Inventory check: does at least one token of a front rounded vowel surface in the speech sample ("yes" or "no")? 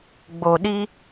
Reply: no